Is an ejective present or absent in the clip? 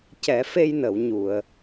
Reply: absent